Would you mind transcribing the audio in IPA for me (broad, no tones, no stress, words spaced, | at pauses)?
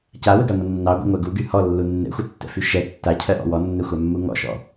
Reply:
cawəɡaŋʷə nːɑɡʷɛ̰ŋʷɜ ɡuɡy hɔlːu nːɛ̰xʷətːɛ̰fy ʃɛ tːacʰɜʔɔ̰ wɔnːɛxʷamːu ŋɔ̰ʃɔ̰